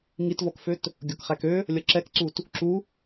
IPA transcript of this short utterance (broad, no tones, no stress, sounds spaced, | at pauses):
ŋ i t v ɔ k f ø t | ɡʲ ɔ k χ æ k ø | lʲ ʌ ǁ ɛ k ǀ u t | ǁ u